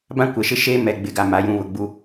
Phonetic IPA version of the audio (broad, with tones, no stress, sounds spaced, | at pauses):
b ã˦ kʷ ɛ˨ ʃ ɪ˦ ʃ eː˦ m ɛ˨ ɡ͡b ɪ˨ ɡ a˨ m a˨ j ũ˨ β ʊ˨ ɡ͡b u˦